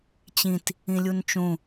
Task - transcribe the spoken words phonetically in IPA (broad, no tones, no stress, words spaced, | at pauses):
t͡ɕĩt | ĩlʲunt͡ʃũ